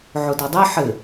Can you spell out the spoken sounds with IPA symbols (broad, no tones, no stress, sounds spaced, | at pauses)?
ʕ ʊ d ɔ dˤ ɘ ħ ɘ